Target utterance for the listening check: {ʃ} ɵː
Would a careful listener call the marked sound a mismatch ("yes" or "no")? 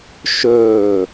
no